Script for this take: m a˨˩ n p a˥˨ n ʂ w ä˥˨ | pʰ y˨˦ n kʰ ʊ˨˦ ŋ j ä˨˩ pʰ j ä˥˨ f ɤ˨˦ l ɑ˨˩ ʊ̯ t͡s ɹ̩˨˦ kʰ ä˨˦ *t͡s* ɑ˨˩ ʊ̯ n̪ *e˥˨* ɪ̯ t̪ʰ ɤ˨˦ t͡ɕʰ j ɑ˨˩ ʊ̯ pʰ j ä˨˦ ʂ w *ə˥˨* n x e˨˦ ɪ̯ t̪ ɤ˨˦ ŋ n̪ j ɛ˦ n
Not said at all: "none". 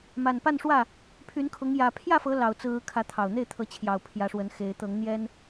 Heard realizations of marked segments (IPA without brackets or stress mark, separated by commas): t̪ʰ, e˥˨, ə˨˦